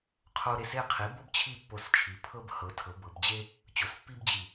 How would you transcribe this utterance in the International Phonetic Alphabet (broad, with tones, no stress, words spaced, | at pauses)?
qʰo˥ ɾe˩˥se˥˨qʰi˩˥bo˥b t͡ɕʰi˥˨pːo˧˩st͡ʃʰi˩˧ pʰɤ˥bhɤ˩˥ tʰɤ˩˥bɤ˩˧b d͡ʑe˥ | t͡ɕo˩˥spːi˥bd͡ʑi˧˩